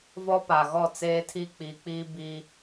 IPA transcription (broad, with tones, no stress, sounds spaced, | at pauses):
v ɔ˦ p a˨ ɣ ɔ˦˨ t͡s eː˦ tʰ i˦ k͡p iː˨ k͡p iː˦ b i˦